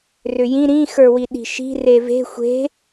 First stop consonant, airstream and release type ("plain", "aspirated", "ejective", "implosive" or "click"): implosive